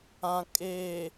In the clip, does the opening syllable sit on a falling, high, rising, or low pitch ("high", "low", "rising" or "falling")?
low